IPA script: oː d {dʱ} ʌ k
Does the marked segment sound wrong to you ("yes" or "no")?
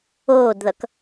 yes